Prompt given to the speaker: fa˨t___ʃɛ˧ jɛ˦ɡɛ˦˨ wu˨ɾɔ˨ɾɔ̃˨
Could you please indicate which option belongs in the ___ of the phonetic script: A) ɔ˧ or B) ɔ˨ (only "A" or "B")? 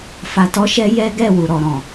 A